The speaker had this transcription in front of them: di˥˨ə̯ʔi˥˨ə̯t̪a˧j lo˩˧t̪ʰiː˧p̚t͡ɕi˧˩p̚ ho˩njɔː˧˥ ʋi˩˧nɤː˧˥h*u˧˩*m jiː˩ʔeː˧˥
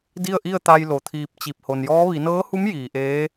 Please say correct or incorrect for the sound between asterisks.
incorrect